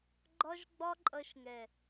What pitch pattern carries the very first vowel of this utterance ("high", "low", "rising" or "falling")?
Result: high